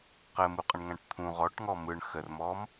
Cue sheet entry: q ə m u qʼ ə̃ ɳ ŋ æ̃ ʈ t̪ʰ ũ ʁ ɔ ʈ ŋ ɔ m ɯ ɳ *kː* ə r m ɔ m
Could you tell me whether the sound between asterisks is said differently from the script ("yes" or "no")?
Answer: yes